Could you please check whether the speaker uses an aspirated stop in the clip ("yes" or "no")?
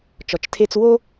yes